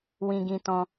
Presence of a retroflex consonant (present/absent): absent